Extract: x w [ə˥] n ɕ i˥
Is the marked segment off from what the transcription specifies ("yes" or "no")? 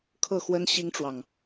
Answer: no